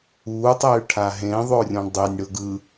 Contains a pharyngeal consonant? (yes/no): no